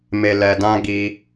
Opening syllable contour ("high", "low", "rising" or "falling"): low